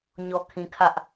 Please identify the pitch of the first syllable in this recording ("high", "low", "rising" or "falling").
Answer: low